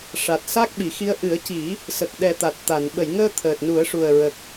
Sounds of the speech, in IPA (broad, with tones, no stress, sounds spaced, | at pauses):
ʂ a˨˩ t̚ s a˦˥ k̚ ɓ i˨˩˨ x i˧˥ ə̯ ʔ ɨ˨˩˦ ə̯ c i˨˩˦ | s ə˨˩ k̚ ɗ ɛ˨˩ t̪ a˨˩ t̚ t̪ a˨˩˨ n ɓ ə˨˩˨ j ŋ əː˧ t̪ʰ əː˨˩ t̚ n u˨˩˦ ə̯ ʂ u˨˩ ə̯ ɹ ə˨˩ k̚